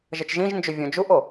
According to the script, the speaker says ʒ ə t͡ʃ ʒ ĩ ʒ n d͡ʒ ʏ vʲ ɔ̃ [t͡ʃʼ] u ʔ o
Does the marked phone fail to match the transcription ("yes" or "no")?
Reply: yes